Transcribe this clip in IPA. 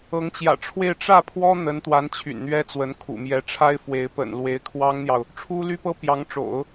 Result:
ɤ˧˥ ŋ t͡ɕ j ä̰˨˩ ʈ͡ʂʰ w e˥˧ ɪ̯ ʈ͡ʂ ä˥˩ pʰ w ɔ˥ n̪ ə˧˥ n t̪ w a˧˥ n t͡ɕʰ y̰˨˩ n n̪ ɥ ɛ˥ t͡s w ə˧˥ n kʰ ṵ˨˩ m j ɛ˧˥ ʈ͡ʂʰ a˥ ɪ̯ f w e˧˥ ɪ̯ p ə̰˨˩ n l w e˧˥ ɪ̯ kʰ w ɑ˥ ŋ n̪ j ɑ˨ ʊ̯ | ʈ͡ʂʰ u˥ l y˥ p ɤ˥ p j ɑ˧˥ ŋ ʈ͡ʂ o̰˨˩˦ ʊ̯

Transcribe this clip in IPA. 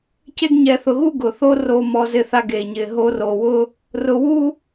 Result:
c e˥ ɡ ɲ ɛ˧ θ ʊ˧ ɣ u˥ ɡ ʊ˩ θ o˥ r o˧ m ɔ˧ z ɪ˧ θ a˧ ɡ e˩ ɲ ɪ˩ ɦ o˧ r o˩ w ʊ˥ | r ʊ˧ w u˥

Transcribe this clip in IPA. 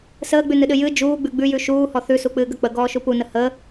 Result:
s əː ɡ͡b ʉ n ɨ ɗ ɨ j ɨ d͡ʒ uː ɡ͡b ʉ ɡ͡b ʉ j ʉ ʃ uː h ɔ θ ʉ s u k͡p ɨː ɡ ə k͡p ə ɡ ɔː ʃ u p u n ə h ə

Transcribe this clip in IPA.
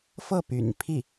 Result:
f ɤ˥˩ p y̰˨˩ n pʰ i˥˩

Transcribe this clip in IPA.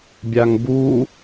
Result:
bʲ a ŋ b u

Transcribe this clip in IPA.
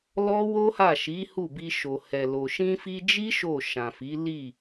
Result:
l ɔ˦ w o˦ h a˦˨ ʃ i˨˦ h u˦˨ b i˧ ʃ o˨ h ɛ˨ l o˨ ʃ ĩ˧ f i˧ d͡ʒ i˦ ʃ o˦˨ ʃ ã˨ f i˨˦ l i˦˨

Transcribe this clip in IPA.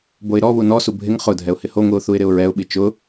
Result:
b o ɪ̯ ɾ ɔ β u n ɔ s u bʱ ɪ ŋ χ ʊ dʱ ɛ ʊ̯ h ɪ h o ŋʷ i ʊ̯ θ u ɪ̯ ɾ ɪ ʊ̯ ɹ ɛ ʊ̯ ɓ i t͡ʃ ʊ

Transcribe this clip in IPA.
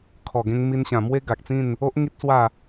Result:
kʰ ɔ˨˩ ɡ ẽ˧ ŋ m i˧ n ɕ ã˨˩ m w e˦ ɡ a˨ k̚ t͡s ĩ˥˧ n | o˦ ʔ ŋ i˦ t̚ s w a˥˧

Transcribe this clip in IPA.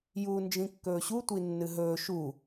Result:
j uː n d͡ʒ ĩ kː ɵː ɕ u tʷ i nː ɨ ɦ ɵː ʃ u

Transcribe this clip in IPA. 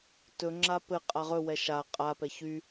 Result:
t ɵ ŋ͡ǁ a p ɘ qʼ a ʁ ɵ w ɛ ʃ a qʼ a p ɛ ç y

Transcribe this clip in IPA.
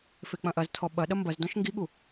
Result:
f e k͡p ɐ̃ ʔ ɐ z tʰ ɔ ɓ ɐ ɗ ɐ m b ɐ z d ɔ̃ ʃ ŋ ɡ i ɠ u

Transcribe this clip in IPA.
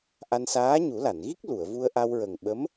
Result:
ʔ a˧ n s aː˧˥ ɲ u˨˩˦ l a˨˩˨ n ɣ i˦˥ k̚ l u˨˩˨ ə̯ v u˧ ə̯ ʔ a˧ w ɹ ə˨˩ ŋ ɓ ə˧˥ m

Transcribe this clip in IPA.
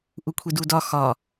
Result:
ʔ u kʷʰ i d u d ɒ x ɒ

